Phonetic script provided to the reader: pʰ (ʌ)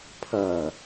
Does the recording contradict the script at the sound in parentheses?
no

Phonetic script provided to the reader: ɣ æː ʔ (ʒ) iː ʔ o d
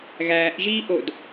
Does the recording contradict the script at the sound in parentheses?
no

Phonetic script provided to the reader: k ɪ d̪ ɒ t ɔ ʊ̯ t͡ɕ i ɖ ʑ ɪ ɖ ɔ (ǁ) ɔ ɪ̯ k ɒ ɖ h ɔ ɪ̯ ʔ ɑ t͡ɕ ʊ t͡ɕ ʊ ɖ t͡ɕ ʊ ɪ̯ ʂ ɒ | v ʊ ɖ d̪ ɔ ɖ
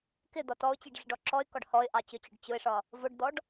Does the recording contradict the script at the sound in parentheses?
no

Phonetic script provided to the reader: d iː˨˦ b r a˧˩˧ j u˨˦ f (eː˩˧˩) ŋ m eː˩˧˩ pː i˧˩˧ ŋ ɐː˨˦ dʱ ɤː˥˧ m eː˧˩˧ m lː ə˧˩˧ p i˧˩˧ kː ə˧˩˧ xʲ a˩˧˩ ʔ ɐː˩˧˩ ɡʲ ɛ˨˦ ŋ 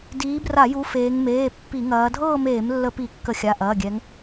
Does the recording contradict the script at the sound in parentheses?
yes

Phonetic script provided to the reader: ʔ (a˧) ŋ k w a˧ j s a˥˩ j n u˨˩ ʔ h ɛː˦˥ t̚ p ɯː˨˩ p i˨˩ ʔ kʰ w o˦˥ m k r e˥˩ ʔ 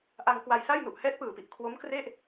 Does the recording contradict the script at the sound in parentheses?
no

